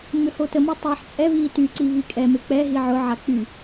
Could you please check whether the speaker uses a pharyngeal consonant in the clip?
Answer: yes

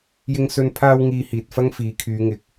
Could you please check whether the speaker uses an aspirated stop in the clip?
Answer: yes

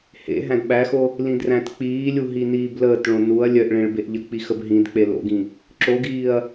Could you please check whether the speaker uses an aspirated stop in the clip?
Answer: no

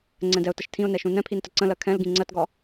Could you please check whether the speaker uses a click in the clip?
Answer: yes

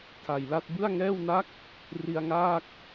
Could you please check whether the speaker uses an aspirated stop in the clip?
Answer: yes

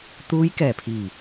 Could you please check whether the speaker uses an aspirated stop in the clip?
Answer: yes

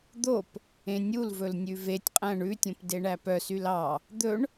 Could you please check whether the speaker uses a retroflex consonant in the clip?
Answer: yes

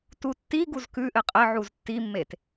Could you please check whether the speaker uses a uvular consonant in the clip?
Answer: yes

